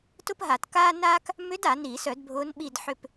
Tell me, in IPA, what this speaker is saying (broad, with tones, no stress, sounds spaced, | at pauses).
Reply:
t ʊ˥ p ɦ a˧˩˧ t k aː˥ n aː˥ k | m ʏ˧˥ d a˧˩˧ n iː˧˩˧ s œ˧˩˧ d bʱ ʊː˧˥ n ɓ i˦˨ d ħ ʏ˦˨ p